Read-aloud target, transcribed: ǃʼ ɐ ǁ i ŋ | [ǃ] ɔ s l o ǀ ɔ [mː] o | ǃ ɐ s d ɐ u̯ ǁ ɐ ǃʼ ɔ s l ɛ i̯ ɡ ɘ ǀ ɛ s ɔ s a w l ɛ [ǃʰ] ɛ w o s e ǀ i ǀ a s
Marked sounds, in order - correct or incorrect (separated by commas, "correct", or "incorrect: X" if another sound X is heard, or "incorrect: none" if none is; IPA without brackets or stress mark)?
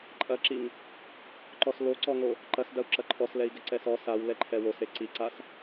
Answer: correct, incorrect: ŋ, correct